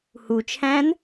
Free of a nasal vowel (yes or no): no